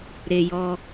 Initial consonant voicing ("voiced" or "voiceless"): voiced